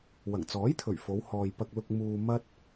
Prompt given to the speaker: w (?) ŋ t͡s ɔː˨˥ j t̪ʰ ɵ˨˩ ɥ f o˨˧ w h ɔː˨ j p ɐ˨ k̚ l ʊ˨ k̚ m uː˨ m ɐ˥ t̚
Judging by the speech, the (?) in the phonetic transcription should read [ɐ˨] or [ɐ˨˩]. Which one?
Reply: ɐ˨˩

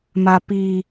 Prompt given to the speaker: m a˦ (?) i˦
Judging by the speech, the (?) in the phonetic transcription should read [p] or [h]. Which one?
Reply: p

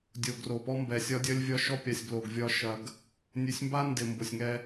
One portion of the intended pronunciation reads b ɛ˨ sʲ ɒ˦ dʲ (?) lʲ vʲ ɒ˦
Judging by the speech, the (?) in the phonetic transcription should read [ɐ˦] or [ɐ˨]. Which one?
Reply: ɐ˦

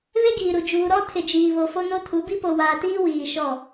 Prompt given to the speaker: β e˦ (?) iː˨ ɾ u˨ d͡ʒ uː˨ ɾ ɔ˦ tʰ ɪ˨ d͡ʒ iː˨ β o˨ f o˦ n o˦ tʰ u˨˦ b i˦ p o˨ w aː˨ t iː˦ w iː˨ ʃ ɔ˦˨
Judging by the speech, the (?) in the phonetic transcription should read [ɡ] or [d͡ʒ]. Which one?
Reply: ɡ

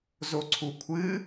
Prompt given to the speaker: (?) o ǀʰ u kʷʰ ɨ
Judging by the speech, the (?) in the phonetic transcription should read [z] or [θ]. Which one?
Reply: z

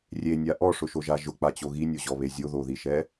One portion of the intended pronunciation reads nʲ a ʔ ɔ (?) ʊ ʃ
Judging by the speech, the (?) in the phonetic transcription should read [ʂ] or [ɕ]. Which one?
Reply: ʂ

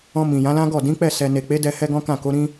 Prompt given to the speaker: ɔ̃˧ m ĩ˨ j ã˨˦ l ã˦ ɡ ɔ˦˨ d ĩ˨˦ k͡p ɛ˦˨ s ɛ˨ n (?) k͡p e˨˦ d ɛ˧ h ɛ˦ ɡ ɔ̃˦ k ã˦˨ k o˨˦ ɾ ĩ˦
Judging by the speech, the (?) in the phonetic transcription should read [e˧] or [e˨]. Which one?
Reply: e˨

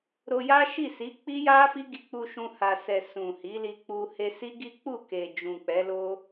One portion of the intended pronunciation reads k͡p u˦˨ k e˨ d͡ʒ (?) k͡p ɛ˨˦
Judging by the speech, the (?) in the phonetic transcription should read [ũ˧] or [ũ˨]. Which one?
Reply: ũ˨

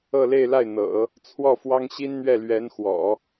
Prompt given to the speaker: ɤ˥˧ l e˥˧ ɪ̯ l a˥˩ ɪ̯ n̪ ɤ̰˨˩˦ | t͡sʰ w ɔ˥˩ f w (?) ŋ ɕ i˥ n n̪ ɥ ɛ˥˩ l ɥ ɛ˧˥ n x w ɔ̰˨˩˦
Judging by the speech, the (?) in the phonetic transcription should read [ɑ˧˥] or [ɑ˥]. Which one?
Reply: ɑ˥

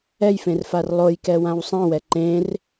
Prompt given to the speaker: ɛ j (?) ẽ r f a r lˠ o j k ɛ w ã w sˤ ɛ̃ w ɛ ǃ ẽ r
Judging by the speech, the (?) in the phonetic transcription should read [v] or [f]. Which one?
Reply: f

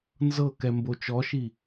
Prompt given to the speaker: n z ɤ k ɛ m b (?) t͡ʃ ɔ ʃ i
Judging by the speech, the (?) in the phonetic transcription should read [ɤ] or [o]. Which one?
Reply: o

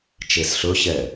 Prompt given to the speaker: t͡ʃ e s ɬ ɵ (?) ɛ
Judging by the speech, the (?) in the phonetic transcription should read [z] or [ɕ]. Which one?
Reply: ɕ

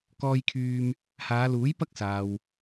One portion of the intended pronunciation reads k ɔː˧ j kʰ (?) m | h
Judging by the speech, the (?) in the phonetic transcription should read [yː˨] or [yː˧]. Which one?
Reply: yː˧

